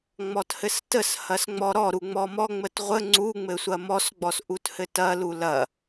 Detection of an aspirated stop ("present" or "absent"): absent